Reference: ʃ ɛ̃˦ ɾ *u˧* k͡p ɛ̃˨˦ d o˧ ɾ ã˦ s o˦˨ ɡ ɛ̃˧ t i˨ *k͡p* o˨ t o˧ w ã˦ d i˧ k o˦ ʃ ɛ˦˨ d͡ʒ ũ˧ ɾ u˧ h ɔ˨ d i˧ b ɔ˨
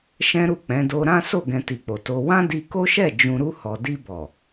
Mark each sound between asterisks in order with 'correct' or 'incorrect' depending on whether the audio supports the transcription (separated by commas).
incorrect, correct